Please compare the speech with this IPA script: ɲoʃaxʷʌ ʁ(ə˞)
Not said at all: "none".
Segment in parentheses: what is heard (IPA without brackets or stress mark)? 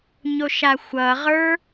ə˞